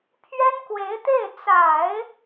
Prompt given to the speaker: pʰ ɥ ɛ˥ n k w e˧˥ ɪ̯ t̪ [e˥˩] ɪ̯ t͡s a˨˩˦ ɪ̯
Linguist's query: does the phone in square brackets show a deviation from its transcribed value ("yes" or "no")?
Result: no